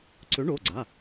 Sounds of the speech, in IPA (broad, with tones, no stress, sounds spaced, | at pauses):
ǀ ø˨˥ ɳ o˩˧˩ ɡ͡ǀ a˩˧˩